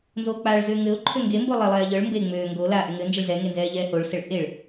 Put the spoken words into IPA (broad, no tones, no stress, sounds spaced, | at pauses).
n z oː k͡p aː ɭ z øː ŋ ɘ ʊ̯ ǃʰ ø ŋ ɡ e m b o lˠ e lˠ ɛː ʎ ɤ ɭ m b e ŋ͡m øː ŋ ɡ o l a ʔ ɛ ŋ ɘ n d͡ʒ ɘ ɭ z ɛ ŋ e n z ɛː ʎ ɛː h o ɭ s ɛ ɭ ʔ e ɭ